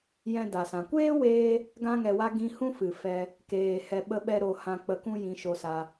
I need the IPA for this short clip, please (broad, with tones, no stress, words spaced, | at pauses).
jɛ̃˧ da˨sã˨ kʷeː˦weː˧ | ɡã˧ŋɛ˨wa˧ ɡĩ˧hũ˦fɨ˨ fɛ˦ | keː˨hɛ˧ ɓə˦ɓɛ˦ ɾo˦hã˦ k͡pə˧kũ˦ jĩ˧ʃo˧sa˧